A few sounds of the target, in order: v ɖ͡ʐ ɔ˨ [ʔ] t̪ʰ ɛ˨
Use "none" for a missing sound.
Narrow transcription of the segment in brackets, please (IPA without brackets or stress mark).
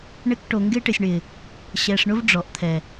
ʔ